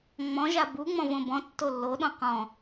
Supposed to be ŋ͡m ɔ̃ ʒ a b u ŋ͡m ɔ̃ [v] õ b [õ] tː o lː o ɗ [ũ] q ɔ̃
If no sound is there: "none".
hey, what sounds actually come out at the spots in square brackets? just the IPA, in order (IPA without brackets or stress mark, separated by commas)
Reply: v, ɔ̃, õ